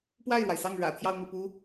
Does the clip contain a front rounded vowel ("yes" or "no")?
no